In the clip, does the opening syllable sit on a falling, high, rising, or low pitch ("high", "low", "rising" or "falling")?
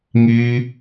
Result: high